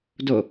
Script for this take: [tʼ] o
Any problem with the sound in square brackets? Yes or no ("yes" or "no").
yes